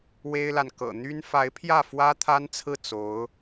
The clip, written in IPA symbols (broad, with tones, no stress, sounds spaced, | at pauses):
w e˥ ɪ̯ l a˨ n k ɤ̰˨˩ n̪ y˥ n f a˧˥ ɪ̯ pʰ j ä˥˩ f w ä˥ t̪ʰ a˥ n t͡sʰ ɹ̩˥˩ t͡s o˧˥ ʊ̯